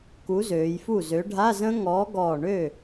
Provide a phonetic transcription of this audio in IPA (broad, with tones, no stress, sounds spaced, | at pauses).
k u˨˥ z øː˩˧ j f u˥˩ z ø˨˥ ɖʱ a˧˥˧ z ə̃˦˥ ŋ ɔː˨˥ ɡ ɔː˧˩ ɳ ø˥˩